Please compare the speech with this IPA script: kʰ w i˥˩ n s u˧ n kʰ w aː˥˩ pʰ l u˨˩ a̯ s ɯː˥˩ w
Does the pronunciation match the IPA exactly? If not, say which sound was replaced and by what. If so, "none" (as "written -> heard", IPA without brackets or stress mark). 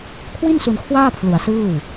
none